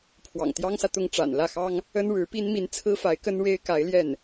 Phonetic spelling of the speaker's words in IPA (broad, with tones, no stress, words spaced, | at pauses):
pʰwɑ̰˨˩ŋt̪jɑ˥ŋsä˨t̪ʊ˥˩ŋ ʈ͡ʂa̰˨˩nlä˥˩xɑ˥ŋ | ə˥nɻɻ̩˧˥pi˥n mi˧˥nt͡sʰɹ̩˥fa˧˥ɪ̯kə˥n ɻe˥ɪ̯ka˧˥ɪ̯ljɛ˥˩n